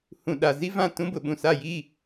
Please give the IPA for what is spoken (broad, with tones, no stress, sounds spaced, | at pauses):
h ũ˨ ɗ a˨ z i˦ v ã˦˨ t ũ˦ b ʊ˨ ɓ ũ˨ s a˦˨ j i˦˨